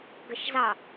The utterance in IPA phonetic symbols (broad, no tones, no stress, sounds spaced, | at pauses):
ɡ ə ʃ z ɑ